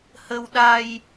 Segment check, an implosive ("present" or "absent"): present